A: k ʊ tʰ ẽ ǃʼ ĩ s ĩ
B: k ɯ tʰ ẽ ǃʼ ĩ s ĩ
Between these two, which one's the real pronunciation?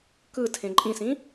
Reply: B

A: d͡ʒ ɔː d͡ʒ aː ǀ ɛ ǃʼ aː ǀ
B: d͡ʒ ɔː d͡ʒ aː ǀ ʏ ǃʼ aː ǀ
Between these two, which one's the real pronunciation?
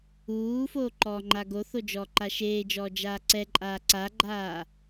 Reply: A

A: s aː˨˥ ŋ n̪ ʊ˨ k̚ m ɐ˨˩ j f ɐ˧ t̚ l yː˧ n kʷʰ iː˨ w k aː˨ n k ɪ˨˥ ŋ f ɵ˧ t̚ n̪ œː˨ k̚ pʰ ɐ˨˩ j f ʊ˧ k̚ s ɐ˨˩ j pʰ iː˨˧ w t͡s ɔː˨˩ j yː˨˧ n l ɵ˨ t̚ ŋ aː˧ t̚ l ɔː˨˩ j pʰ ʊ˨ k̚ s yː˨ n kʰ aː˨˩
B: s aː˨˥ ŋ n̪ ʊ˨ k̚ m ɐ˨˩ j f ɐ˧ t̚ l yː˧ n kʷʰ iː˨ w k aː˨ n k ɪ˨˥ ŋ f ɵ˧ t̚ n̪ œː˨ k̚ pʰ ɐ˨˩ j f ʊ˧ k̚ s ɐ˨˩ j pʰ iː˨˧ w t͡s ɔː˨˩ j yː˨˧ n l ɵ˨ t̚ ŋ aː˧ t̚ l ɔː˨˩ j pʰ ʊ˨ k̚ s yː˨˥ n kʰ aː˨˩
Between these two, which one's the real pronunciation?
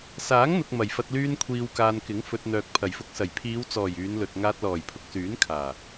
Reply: B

